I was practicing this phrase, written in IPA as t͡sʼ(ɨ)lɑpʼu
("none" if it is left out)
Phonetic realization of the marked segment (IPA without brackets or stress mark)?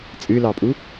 ɨ